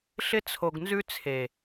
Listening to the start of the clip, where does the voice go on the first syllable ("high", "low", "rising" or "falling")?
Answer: high